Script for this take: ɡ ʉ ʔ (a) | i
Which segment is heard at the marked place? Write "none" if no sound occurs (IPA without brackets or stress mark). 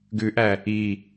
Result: æ